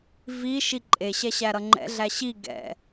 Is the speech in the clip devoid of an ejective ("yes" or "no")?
no